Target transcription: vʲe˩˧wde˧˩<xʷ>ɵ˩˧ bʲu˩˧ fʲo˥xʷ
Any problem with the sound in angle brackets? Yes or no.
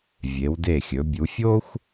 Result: yes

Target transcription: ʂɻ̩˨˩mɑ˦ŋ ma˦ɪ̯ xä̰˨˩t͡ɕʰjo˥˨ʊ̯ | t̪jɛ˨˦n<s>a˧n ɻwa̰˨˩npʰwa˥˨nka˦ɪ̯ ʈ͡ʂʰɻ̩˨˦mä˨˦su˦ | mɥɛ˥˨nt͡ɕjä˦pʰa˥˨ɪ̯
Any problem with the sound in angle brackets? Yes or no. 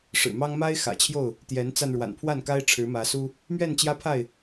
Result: yes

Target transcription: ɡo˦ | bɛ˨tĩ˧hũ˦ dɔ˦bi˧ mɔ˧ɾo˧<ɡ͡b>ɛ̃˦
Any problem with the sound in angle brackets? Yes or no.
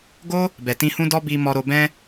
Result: yes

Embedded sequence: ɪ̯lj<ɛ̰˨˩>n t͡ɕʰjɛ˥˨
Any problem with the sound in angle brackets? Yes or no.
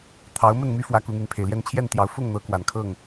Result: yes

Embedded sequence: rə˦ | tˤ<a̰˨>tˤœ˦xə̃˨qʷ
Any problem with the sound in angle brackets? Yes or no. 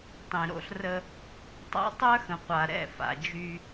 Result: yes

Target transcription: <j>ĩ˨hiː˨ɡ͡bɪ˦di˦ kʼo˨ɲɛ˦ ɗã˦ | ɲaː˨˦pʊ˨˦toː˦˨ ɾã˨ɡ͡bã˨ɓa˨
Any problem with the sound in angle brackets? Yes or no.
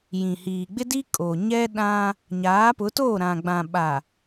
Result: no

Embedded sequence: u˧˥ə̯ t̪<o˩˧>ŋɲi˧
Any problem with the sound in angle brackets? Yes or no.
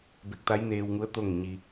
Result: yes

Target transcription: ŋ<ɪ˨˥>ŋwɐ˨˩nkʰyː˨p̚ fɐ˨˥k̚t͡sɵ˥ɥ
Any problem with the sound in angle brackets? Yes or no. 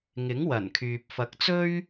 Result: no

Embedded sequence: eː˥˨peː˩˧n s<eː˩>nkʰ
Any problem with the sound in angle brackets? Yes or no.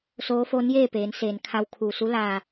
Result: no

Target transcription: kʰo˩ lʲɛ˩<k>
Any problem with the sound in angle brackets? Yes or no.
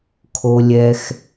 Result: yes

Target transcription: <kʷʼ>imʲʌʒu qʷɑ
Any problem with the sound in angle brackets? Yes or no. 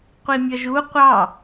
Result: yes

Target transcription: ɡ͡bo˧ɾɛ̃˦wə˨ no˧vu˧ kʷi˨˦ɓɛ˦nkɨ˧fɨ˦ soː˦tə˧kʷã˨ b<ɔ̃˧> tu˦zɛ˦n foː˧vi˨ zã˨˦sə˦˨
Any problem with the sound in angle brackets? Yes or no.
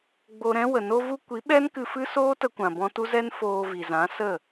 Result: no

